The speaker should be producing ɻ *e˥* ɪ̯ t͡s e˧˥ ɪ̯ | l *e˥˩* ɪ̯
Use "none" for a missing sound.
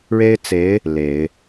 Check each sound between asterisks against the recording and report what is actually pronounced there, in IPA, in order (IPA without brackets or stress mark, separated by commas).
e˥, e˨˩˦